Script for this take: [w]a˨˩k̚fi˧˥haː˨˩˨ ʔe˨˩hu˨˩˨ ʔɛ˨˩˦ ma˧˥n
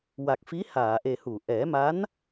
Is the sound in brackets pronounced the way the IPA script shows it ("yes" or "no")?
yes